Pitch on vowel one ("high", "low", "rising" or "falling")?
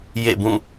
falling